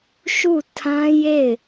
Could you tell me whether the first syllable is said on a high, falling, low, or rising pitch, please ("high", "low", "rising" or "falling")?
falling